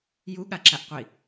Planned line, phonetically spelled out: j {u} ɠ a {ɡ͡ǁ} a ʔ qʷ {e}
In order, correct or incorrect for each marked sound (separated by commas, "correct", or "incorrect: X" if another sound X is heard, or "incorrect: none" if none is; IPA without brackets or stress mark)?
correct, incorrect: ǁ, incorrect: i